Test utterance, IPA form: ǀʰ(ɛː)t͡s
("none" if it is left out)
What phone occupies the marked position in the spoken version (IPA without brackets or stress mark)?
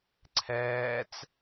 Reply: ɛː